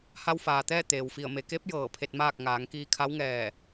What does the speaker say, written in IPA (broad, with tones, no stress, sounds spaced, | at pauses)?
h a˧ w f aː˩ t̪ ɛː˥˨ t̪ eː˩ w f i˧˩ ə̯ m e˩˧ k e˧˥ p̚ j ɤː˧˩ pʰ e˧ t̚ m aː˥˨ k̚ ŋ aː˩˧ ŋ k iː˧ kʰ a˧˥ w ŋ ɛː˧˩